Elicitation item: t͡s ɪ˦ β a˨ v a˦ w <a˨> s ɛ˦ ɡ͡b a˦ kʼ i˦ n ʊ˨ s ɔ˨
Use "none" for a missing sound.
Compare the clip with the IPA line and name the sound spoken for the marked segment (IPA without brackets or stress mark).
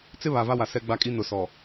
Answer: a˨